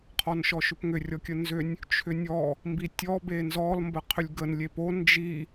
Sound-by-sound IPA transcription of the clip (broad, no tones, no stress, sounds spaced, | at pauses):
qʰ ɔ n ʃ ɔ ʃ ʏ p ŋ ʏ rʲ ɔ kʲ ə n z ʏ nʲ | t͡ʃʰ ʏ nʲ ɔ | m b i tʲ ɔ b e n z ɔ l m b ə qʰ ʏ lʲ ɡ ə n lʲ e p o n d͡ʒ i